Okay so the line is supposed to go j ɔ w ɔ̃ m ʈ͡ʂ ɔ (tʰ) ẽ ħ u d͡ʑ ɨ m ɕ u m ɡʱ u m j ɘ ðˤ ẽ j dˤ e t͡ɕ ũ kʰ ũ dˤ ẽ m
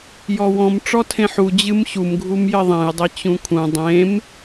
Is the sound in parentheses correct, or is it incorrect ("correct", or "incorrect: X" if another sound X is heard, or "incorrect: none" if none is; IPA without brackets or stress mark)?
correct